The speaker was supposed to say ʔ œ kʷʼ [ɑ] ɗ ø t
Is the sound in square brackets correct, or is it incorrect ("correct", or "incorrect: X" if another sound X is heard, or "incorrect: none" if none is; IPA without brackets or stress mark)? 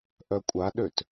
incorrect: a